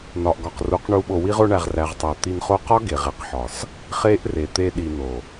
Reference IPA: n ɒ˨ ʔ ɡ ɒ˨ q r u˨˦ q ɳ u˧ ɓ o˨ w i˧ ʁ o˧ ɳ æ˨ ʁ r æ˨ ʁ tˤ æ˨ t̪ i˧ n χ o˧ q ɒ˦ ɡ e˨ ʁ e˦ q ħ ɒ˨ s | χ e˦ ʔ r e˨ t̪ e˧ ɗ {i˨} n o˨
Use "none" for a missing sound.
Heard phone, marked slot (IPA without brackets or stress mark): i˨